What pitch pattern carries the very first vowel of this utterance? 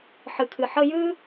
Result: low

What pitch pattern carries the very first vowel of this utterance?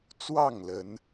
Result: falling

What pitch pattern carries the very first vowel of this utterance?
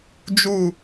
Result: falling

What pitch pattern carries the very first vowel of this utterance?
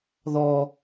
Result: low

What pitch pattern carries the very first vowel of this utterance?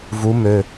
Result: rising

